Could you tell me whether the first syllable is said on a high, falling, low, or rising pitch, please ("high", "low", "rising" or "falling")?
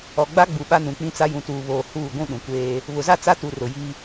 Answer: low